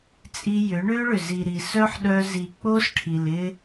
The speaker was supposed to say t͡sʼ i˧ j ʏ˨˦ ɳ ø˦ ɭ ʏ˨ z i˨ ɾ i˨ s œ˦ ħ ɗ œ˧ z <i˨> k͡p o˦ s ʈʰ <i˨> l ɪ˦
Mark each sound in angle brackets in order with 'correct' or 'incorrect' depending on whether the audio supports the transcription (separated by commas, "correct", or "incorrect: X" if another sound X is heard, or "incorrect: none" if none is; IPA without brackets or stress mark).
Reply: correct, correct